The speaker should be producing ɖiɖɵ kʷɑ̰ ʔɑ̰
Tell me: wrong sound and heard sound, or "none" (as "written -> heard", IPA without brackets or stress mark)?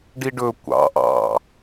none